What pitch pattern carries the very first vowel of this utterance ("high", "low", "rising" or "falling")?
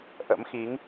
rising